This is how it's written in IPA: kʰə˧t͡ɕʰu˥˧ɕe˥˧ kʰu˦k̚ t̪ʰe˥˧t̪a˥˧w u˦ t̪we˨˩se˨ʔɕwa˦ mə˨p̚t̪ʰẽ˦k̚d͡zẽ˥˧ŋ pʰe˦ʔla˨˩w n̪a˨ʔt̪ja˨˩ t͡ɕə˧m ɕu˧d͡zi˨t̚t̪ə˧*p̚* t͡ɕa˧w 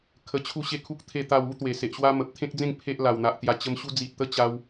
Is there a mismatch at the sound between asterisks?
yes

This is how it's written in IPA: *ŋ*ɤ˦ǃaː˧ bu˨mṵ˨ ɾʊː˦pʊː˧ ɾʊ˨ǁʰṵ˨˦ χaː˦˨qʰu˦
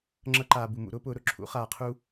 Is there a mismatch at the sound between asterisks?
yes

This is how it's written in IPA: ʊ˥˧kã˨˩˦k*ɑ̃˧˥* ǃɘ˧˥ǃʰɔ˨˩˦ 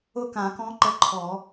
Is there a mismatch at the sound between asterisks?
yes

